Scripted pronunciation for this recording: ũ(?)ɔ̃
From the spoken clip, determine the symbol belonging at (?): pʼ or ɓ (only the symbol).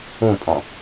pʼ